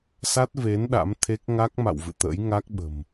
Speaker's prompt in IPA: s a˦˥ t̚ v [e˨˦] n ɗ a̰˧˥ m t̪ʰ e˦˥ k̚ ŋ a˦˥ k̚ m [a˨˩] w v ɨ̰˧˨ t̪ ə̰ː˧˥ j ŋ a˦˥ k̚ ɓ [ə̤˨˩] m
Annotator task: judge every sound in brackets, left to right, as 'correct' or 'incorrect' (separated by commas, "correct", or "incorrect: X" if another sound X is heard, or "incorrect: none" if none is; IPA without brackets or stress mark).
correct, incorrect: a̰˧˨, correct